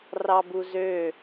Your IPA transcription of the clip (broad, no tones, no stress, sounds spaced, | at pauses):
r ɑ b u z ø